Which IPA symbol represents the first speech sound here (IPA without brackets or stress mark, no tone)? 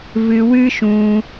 v